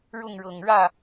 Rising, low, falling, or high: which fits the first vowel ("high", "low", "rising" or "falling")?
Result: falling